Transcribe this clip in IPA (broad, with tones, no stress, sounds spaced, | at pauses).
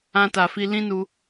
ã˧ t a˨ f i˧ l ĩ˦ n u˧